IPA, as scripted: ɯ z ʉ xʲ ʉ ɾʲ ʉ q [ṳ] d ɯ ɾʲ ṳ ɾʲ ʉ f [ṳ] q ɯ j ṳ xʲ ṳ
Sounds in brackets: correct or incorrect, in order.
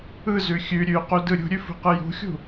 incorrect, correct

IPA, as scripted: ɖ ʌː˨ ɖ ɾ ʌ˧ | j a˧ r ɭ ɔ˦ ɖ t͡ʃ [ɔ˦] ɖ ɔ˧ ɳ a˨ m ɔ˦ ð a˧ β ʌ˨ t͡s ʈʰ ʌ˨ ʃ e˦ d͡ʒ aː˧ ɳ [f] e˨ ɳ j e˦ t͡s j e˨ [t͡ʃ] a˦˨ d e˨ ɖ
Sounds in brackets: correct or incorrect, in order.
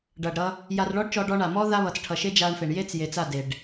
incorrect, correct, incorrect

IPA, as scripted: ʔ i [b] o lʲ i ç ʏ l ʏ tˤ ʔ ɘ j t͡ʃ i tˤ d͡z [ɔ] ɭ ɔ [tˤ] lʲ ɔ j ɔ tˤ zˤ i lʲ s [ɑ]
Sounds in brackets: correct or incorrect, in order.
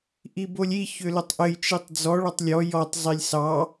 correct, correct, correct, correct

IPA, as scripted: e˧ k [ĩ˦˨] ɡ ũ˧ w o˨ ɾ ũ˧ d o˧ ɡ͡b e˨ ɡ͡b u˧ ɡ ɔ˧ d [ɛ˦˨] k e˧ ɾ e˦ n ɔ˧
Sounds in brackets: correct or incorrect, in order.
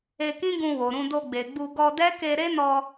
incorrect, incorrect

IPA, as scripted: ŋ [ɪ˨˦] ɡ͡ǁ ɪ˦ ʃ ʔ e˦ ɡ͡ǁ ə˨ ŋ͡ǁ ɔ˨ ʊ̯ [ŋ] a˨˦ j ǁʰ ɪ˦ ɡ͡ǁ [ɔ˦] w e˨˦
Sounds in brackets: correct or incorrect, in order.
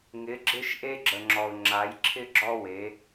correct, incorrect, correct

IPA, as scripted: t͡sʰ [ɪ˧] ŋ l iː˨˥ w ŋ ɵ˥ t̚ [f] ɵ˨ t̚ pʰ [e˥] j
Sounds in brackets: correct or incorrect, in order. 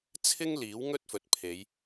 incorrect, correct, incorrect

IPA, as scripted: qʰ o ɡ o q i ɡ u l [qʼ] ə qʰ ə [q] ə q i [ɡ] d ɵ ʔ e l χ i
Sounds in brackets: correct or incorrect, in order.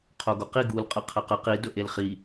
correct, correct, incorrect

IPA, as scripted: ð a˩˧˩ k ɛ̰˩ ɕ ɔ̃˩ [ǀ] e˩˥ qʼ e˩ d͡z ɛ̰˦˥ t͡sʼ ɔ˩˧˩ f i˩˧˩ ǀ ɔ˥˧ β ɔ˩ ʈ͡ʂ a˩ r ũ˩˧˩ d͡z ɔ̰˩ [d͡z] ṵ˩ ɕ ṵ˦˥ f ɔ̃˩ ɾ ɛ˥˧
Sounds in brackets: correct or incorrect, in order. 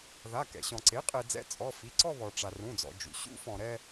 correct, incorrect

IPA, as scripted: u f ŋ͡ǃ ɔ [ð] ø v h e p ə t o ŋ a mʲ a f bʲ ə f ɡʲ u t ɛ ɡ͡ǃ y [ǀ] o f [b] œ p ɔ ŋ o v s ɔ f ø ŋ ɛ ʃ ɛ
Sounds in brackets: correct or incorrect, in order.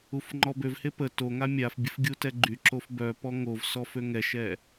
incorrect, incorrect, correct

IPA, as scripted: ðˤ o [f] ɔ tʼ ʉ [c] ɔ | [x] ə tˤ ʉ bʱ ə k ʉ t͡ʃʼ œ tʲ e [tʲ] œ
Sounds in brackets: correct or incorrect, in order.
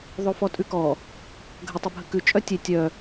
correct, incorrect, incorrect, correct

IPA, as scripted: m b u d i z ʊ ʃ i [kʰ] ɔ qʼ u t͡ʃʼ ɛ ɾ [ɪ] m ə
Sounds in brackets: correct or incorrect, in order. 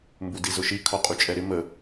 correct, correct

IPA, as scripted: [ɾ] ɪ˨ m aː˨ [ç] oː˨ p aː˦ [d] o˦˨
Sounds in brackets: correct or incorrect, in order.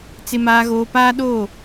incorrect, incorrect, incorrect

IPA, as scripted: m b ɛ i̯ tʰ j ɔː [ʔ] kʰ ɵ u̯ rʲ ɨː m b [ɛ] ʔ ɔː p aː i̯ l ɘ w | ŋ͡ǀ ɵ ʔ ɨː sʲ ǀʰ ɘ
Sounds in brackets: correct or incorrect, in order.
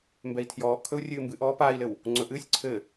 correct, incorrect

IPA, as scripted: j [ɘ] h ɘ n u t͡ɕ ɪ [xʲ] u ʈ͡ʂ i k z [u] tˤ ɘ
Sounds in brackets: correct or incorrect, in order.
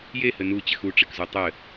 incorrect, incorrect, correct

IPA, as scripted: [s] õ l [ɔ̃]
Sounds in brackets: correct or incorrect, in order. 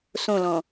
correct, correct

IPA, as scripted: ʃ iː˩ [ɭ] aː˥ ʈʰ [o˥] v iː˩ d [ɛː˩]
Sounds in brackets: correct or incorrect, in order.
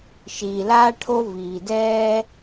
incorrect, correct, incorrect

